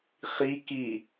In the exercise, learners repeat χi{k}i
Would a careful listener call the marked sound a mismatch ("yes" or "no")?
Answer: no